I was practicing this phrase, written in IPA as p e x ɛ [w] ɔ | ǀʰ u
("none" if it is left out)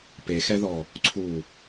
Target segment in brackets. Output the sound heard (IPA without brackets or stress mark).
ð